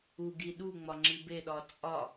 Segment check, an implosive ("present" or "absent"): present